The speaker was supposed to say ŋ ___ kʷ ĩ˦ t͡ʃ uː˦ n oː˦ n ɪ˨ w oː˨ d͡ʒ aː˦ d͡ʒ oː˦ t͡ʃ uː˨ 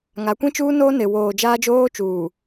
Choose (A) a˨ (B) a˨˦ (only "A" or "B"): B